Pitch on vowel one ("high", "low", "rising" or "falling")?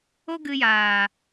high